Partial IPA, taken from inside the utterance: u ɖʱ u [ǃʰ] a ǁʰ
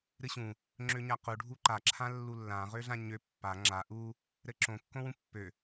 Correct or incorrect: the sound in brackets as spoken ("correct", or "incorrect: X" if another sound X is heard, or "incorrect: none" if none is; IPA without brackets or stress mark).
incorrect: ǃ